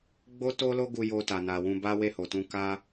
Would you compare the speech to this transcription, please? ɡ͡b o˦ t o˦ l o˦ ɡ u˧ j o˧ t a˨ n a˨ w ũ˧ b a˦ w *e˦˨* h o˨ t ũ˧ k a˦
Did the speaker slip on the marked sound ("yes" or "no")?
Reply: no